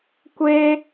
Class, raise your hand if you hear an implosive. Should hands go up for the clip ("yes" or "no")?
no